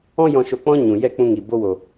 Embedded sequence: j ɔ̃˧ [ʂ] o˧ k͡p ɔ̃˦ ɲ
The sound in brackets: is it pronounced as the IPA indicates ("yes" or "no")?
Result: no